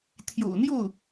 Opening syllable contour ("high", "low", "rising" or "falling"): low